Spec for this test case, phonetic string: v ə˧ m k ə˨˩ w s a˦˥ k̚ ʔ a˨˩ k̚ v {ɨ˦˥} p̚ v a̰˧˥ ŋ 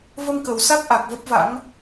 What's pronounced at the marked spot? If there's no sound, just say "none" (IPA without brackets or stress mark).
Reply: ə˦˥